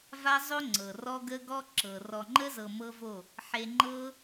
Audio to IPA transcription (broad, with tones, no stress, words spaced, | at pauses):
va˦zˤo˦ ŋ͡ǀɤ˨rɔ˦ɡə˦ ɡɔ˦ ǁɤ˨ rɔ˨ŋ͡ǃə˦zɤ˨ mɤ˦vo˦˨ | ħe˧ŋ͡ǃɤ˦